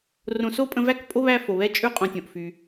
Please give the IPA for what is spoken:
r õ˨ s o˥ pʼ ə̃˦ v æ˥ k pʼ o˥ β æ˦ f o˩ β ɛ˦ t͡ʃʼ ʉ˥ qʼ õ˨ tʲ õ˩ ʔ f y˩

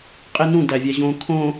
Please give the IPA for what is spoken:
qʼ e n ũ d æ vʲ æ ʑ õ kʰ õ

